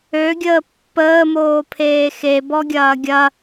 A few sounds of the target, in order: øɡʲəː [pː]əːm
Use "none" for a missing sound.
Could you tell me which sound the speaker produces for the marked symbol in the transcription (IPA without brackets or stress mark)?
pː